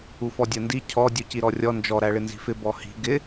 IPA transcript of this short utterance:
ufɔdʲɜndi cʰɔ dʲuciɾɔrʲɔ nd͡ʒɔ ɾæɭɪnzi̤fɪ bɔhi̤ ɡɪ

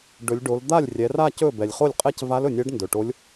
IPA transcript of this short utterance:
ɖɵ˩˧lʲɖo˩˧l d̪a˥˩lʲrʲɛ˩˧ra˥˧ cɵ˥˩ bɛ˩lʲχo˥˩lʲqʼɛ˥˧c va˧˥lɵ˩nʲɛ˧˥ɖ ndɵ˩ʈo˧˥lʲ

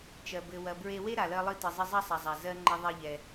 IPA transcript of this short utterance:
t͡ʃɜ˩ bɘ˩ wɐ˩bɹe˧ we˥ ɾa˩lɜ˧ lˠɨ˧tɨ˩zˤɘ˧ zˤɐ˥sˤɐ˩ zˤa˩ zɜ˧ ŋ͡ǃɘ˧ðˤe˧ʎɛ˩

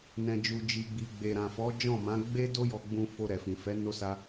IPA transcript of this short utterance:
nɛ̃˨d͡ʒu˨ d͡ʒi˨ɡ͡bi˨ ɡ͡be˨ɾã˨fɔ˨˦ d͡ʒɔ̃˦˨mã˨˦ ɡ͡be˦do˦jɔ˧ɡ͡bũ˧ fo˧ɾɛ˨fĩ˨fɛ˨˦ no˦sa˦

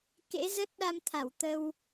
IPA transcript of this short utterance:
kḛ˧˥zə˦˥t̚ɗa˧mt̪ʰa˧˩w t̪ə˧w

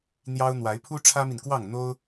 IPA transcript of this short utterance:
n̪jɑ˦ʊ̯n̪wa˨˦ɪ̯ pʰu˦ʈ͡ʂʰä˦mi˨nkwɑ˥˨ŋ n̪o˦ʊ̯

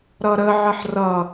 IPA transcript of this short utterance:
ɾʌɾəʕəħ rʌ

